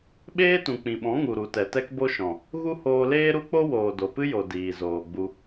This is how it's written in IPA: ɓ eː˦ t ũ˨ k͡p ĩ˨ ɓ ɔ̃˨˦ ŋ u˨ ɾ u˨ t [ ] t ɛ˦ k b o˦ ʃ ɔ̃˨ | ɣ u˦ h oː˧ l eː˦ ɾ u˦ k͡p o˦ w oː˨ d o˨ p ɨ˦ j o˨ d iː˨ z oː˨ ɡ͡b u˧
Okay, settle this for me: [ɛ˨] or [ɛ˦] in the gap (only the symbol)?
ɛ˨